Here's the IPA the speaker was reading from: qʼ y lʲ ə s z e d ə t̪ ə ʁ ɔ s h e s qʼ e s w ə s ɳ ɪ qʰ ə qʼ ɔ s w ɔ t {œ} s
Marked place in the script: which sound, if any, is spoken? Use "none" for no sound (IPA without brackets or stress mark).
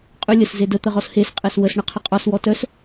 œ